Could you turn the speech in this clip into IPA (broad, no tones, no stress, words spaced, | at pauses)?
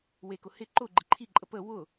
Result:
wekʊ hɪ ǃʊ ɡ͡ǃɪǃʰiǃʼə pə wʊ